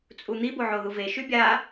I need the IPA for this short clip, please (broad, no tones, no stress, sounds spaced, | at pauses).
t͡sʼ u n̪ i b o ʕ o ð u v e ʃ y bʲ a